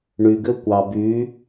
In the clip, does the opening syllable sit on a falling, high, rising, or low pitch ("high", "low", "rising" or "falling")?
low